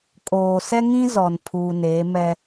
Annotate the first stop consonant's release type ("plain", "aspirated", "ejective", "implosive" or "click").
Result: ejective